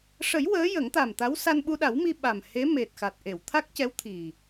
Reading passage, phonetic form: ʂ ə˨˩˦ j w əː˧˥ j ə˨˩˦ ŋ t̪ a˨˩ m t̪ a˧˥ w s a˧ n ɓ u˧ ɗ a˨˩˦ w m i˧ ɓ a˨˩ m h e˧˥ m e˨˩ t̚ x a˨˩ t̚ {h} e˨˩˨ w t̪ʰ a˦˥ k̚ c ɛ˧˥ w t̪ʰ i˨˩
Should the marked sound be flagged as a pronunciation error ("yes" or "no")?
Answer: yes